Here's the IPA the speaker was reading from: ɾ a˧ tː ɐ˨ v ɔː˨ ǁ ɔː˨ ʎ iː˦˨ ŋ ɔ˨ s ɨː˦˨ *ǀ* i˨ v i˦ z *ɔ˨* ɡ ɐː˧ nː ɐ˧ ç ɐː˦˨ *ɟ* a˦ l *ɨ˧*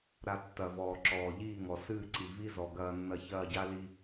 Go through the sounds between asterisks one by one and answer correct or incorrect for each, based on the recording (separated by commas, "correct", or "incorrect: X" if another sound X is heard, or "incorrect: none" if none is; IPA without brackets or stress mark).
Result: correct, correct, correct, incorrect: i˧